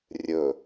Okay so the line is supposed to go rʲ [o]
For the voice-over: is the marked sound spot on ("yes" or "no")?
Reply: no